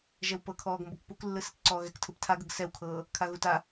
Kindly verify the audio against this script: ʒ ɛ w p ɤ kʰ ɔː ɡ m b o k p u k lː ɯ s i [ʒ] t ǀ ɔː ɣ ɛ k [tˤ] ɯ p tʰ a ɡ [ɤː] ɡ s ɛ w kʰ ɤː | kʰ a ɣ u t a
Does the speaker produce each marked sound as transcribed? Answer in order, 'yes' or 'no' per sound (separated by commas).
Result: no, no, no